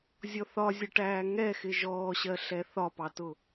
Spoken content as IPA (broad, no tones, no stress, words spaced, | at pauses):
zʲɔθɒzʲʌʈæː ŋɛxɪ ʒɔːɕɜɬɛ θɒpɑtʊ